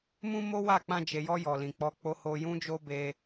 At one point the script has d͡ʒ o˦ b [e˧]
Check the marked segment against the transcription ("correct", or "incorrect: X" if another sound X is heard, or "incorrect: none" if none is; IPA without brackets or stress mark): correct